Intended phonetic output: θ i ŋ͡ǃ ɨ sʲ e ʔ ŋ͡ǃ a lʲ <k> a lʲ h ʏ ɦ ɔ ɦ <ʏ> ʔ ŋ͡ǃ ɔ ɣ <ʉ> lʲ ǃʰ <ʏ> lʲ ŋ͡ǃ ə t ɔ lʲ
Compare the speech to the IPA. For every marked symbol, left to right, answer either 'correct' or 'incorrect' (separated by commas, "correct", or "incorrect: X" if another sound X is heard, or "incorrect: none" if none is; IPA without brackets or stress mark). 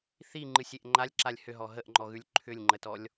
incorrect: ǁ, incorrect: ə, correct, correct